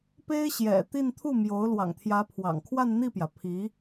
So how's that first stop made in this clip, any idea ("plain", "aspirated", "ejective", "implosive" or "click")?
plain